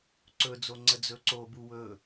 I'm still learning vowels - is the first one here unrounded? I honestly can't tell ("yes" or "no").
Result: no